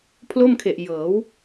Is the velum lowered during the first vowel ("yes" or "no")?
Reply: no